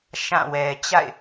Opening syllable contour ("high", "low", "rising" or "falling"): falling